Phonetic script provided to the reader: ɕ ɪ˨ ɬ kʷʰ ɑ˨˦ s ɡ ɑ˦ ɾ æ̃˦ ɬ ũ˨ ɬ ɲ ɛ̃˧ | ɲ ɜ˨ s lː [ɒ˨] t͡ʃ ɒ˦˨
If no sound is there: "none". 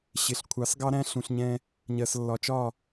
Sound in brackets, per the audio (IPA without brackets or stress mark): ɒ˨